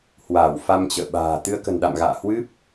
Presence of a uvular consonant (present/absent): absent